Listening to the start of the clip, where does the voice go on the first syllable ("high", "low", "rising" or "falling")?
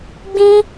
high